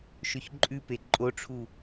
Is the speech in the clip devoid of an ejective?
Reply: no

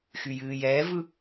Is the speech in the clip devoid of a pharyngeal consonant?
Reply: yes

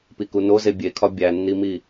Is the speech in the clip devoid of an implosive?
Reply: yes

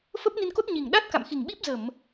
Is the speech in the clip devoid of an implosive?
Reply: no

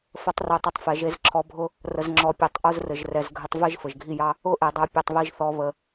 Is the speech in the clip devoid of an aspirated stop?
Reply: no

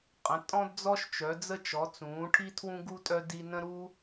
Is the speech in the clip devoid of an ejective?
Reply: no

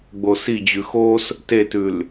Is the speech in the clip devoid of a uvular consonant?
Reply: yes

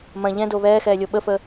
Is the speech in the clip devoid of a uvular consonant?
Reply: yes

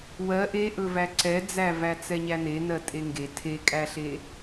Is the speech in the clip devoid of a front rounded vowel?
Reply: yes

